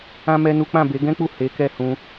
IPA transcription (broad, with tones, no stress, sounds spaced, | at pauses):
ã˦ m ɛ˦ n u˦ k͡p ã˦˨ b e˨˦ ɡ ɛ̃˦ k͡p u˦˨ h e˨˦ k ɛ˦˨ h ũ˧